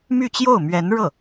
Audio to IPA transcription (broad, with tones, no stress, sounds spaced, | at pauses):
m y˥˧ t͡ɕ j o˥˩ ʊ̯ m ɥ ɛ˧˥ n ɻ ɤ˥˩